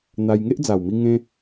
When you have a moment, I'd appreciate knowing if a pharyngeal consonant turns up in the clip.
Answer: no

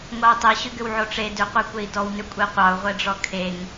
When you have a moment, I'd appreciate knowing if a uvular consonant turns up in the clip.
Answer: yes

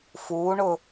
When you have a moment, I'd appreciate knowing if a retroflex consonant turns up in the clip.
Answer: yes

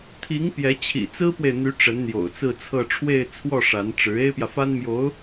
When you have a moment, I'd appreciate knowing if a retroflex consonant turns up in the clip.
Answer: yes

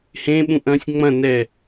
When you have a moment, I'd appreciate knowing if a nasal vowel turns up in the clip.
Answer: yes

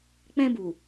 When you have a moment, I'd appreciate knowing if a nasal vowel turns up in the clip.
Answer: yes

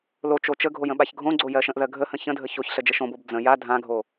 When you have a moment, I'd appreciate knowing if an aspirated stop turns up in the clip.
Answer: no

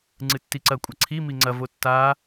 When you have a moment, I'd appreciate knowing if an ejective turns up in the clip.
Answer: yes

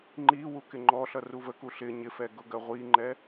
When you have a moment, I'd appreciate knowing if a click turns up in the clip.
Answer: yes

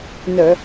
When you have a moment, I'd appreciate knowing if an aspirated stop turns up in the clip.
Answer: no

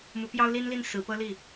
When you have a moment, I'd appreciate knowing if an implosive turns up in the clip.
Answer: no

